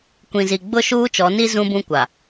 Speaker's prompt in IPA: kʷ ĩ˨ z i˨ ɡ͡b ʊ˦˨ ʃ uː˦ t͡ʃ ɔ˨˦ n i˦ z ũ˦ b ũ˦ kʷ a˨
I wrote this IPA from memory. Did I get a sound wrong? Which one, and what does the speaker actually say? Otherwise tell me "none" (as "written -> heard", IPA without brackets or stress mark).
none